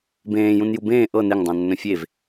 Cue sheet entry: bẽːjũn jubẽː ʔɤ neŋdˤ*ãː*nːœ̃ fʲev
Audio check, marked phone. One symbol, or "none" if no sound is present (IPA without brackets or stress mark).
ã